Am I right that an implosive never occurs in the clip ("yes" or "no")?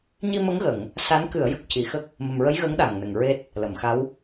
no